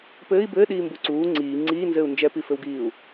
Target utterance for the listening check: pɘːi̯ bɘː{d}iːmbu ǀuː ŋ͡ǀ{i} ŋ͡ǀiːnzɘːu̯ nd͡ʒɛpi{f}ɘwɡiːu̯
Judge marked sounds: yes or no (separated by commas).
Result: no, no, yes